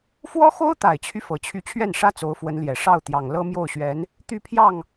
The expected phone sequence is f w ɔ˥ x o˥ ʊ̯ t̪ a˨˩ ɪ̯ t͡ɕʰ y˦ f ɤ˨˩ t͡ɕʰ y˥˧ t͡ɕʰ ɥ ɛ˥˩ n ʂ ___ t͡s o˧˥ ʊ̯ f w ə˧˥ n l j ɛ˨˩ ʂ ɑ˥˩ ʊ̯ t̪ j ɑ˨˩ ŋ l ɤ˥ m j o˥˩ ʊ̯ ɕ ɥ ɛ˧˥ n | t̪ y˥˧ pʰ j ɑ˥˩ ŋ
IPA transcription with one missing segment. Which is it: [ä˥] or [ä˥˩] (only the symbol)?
ä˥